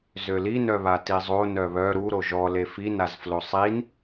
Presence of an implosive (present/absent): absent